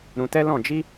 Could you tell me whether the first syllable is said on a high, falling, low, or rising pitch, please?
low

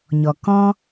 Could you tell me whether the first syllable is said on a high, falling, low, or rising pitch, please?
low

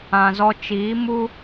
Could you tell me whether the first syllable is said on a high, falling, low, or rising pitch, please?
low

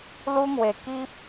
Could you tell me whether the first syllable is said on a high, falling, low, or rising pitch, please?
high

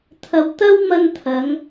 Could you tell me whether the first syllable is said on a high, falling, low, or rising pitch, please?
low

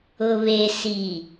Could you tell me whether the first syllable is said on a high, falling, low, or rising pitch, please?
low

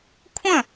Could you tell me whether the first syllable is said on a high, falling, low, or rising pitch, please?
falling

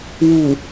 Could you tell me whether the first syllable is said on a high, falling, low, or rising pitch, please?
low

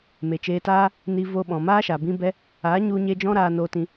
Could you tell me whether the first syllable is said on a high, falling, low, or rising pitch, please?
low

